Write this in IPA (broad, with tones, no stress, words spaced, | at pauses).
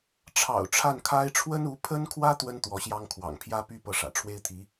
ʈ͡ʂʰɑ̰˨˩ʊ̯ ʈ͡ʂʰa˥˩nkʰa˥ɪ̯ ʈ͡ʂʰwə˥nu˧˥pʰə˥nkʰwä˥ t̪wə˥n t̪wɔ˧˥ɕjɑ˥ŋkʰwɑ̰˨˩ŋ pʰjä˥py˥ pɤ˥˩ʂä̰˨˩ ʈ͡ʂʰwe˥ɪ̯t̪ʰi˧˥